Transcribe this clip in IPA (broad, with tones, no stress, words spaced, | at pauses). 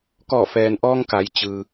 kɔː˧˩fɛː˩nʔɔː˧ŋ ka˩˧jt͡ɕɯː˩